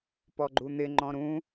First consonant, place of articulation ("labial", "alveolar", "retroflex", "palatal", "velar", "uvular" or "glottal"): labial